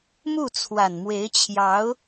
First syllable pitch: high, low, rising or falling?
falling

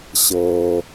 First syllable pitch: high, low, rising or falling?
low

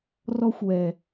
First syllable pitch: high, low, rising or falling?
high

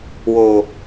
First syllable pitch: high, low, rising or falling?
high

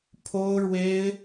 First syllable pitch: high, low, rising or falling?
high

